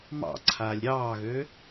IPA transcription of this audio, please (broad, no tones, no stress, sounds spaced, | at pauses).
m ɑ̰ ǀʰ aː lʲ ɾʲ ɑː ɣ ø